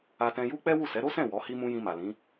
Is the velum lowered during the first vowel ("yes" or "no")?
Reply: no